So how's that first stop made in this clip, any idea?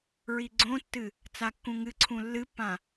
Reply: click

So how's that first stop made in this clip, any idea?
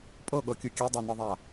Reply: ejective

